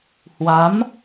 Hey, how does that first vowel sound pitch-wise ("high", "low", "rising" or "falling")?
rising